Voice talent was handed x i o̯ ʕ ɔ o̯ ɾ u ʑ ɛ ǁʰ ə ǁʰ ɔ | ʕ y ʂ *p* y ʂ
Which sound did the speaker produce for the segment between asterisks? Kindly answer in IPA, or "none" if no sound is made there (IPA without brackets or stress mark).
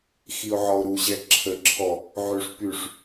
p